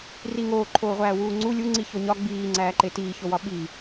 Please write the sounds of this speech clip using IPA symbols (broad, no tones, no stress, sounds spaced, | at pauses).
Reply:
r i ŋ oː ǃʰ oː ʁʷ æː w uː ŋ͡ǀ u lʲ u ŋ͡ǀ i ç o ɲ ɒ ɡ͡b iː ŋ͡ǀ æː ǃ e t iː ç o w ɒ ɓ i